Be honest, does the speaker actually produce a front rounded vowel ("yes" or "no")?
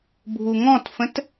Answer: no